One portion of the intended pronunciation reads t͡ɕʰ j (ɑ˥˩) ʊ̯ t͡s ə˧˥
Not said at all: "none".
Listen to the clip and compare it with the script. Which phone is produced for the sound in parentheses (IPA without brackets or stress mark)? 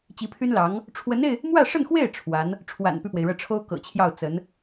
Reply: ɑ˥˩